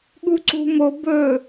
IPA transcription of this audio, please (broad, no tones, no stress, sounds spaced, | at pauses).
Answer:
ɠ u ǀ ṳ m o b ɵ